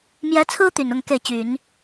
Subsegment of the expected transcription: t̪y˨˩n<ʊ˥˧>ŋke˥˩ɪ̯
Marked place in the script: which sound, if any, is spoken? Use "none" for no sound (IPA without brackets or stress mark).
ʊ˥˧